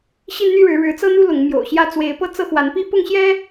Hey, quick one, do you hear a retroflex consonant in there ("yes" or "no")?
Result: yes